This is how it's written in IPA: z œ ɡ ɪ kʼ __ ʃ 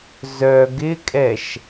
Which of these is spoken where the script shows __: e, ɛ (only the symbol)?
ɛ